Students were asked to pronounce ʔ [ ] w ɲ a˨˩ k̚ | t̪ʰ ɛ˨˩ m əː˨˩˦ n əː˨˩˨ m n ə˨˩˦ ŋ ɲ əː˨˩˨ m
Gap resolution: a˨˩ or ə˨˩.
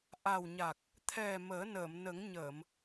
a˨˩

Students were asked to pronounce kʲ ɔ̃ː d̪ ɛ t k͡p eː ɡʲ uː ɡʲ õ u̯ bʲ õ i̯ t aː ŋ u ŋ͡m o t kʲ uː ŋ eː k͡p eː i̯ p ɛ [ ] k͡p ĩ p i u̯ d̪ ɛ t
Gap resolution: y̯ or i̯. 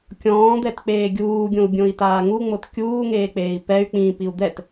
y̯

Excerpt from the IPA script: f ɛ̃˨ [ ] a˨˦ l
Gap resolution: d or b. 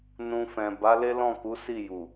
b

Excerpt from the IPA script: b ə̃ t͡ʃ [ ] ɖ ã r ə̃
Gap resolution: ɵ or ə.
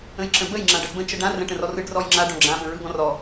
ə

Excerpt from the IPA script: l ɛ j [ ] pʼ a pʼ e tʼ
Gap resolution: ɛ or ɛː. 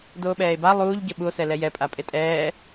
ɛ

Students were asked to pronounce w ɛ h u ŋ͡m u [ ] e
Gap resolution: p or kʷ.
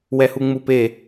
p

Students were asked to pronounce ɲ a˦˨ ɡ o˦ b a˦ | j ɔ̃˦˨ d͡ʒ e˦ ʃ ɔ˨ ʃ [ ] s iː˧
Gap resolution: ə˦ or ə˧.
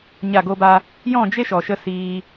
ə˧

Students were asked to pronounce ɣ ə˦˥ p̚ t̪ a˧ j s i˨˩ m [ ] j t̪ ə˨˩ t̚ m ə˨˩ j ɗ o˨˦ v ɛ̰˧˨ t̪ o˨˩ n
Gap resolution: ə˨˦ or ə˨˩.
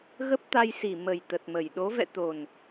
ə˨˩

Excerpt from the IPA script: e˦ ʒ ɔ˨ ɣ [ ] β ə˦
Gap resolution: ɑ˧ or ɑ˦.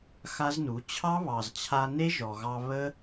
ɑ˧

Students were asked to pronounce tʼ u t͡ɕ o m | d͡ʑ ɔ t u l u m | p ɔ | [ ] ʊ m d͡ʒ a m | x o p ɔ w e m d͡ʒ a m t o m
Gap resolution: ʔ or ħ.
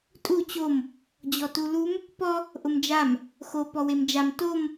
ʔ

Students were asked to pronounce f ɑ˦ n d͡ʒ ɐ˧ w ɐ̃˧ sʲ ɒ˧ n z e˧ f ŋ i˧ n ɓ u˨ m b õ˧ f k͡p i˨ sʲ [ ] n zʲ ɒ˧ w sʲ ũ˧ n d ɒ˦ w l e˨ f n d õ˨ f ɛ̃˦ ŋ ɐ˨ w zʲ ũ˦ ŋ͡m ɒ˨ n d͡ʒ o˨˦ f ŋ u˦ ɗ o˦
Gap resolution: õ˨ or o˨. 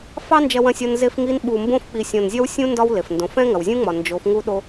õ˨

